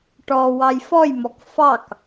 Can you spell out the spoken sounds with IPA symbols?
ʈɔ wɑjfɔjmɔk fɑk

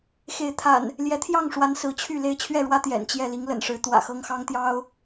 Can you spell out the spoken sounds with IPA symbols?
xe˨˦ɪ̯t̪ʰa̰˨˩n | ljɛ˨˦t̪ʰjɑ˥˨ŋʂwa˨˦n sɹ̩˨˦t͡ɕʰy˥˨ le˥˨ɪ̯t͡ɕʰɥɛ˥˨ɻwä˦ t̪jɛ̰˨˩nt͡ɕjɛ˥˨ li˨˦ŋlə̰˨˩nʂɻ̩˨˦ t̪wä̰˨˩xɤ˦ŋxɑ˦ŋt̪jɑ˦ʊ̯

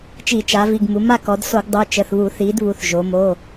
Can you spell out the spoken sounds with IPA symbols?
t͡ʃi˧˩˧t͡ʃa˩˧vi˩˧˩ɡ mu˩˧ma˥˨kɔ˩˧d so˧˩˧ɡdˤo˩˧˩t͡ʃə˩˧˩θβu˧˩˧ θi˩˧d βu˩˧˩θʒo˩˧ mo˩˧˩

